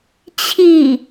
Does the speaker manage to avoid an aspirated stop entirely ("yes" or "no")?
no